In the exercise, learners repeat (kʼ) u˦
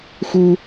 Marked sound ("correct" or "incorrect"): incorrect